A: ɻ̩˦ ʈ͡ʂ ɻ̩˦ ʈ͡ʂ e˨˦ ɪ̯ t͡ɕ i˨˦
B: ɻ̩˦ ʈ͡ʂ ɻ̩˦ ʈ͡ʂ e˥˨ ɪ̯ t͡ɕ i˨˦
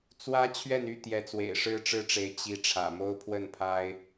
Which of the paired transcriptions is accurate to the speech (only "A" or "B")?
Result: A